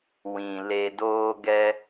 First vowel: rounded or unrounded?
unrounded